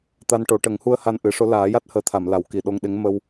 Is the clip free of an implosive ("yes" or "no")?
no